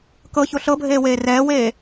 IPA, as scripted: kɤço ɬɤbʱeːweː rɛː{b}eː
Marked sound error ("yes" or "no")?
yes